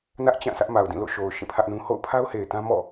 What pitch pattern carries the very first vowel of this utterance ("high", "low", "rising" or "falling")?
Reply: high